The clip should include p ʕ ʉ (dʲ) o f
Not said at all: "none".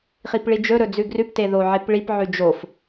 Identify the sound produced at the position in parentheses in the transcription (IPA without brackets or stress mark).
d͡ʒ